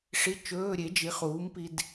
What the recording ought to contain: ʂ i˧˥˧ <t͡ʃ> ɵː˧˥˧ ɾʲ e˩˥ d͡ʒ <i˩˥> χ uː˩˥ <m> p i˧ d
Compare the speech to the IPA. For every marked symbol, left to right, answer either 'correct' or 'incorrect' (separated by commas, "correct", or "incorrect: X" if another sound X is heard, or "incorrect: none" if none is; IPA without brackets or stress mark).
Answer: correct, correct, correct